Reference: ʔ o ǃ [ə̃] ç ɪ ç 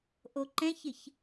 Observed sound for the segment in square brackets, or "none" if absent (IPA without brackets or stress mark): ɛ̃